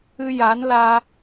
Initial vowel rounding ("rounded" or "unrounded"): unrounded